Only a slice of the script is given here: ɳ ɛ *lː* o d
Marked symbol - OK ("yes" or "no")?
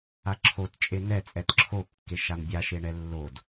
yes